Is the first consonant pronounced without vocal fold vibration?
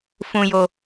yes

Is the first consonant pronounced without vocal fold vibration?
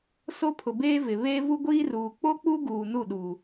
yes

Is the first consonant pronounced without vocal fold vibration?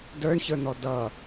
no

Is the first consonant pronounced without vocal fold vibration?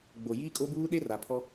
no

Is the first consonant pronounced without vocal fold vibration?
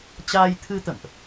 yes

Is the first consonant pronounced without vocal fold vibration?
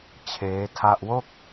yes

